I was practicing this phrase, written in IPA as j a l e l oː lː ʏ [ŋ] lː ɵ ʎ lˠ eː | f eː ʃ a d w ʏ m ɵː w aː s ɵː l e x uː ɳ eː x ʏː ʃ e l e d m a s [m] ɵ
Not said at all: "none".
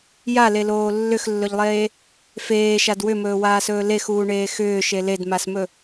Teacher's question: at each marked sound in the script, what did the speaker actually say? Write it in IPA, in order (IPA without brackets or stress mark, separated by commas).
x, m